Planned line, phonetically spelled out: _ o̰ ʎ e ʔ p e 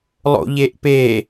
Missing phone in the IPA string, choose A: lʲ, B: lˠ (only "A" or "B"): B